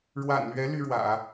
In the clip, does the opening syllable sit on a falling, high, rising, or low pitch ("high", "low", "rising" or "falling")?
low